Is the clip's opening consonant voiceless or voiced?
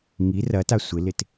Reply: voiced